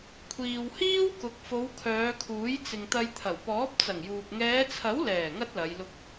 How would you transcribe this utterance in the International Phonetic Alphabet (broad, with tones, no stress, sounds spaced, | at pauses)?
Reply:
kʷʰ iː˨ w h iː˥ w k ʊ˨˥ k̚ f o˨˧ w kʰ œː˨˧ kʰ uː˨˥ j t͡s ɪ˨ ŋ t̪ ɐ˧ j t̪ʰ ɐ˨˩ w p ɔː˨˥ p̚ t͡s ɐ˨˩ ŋ j uː˨ p̚ ŋ ɛː˨˧ t͡sʰ ɐ˨˥ w l ɛː˨˩ ŋ ɐ˥ t̚ l ɐ˨˧ j l ʊ˧ k̚